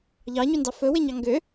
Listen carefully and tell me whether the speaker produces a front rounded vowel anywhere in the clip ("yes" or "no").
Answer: yes